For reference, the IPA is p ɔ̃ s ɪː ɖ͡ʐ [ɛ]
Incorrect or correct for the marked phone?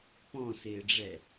correct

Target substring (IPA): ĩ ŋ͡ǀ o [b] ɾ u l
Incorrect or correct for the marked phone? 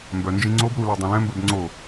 correct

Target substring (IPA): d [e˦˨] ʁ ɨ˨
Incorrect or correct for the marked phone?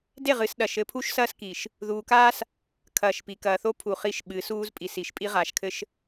correct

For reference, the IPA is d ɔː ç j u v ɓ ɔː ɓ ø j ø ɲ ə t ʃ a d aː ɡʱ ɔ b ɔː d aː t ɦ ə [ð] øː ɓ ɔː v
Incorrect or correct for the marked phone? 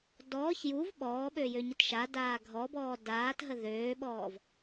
correct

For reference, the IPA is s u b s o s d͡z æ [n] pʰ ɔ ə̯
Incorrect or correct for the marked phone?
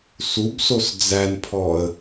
correct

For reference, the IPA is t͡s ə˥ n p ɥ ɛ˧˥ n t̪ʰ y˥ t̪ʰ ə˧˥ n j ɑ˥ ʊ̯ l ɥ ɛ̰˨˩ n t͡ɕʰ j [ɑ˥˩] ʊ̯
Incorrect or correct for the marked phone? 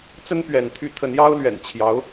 incorrect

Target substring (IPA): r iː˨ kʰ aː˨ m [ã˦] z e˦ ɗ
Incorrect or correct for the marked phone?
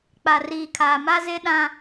incorrect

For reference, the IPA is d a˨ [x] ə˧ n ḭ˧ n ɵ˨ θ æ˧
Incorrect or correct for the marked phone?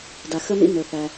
correct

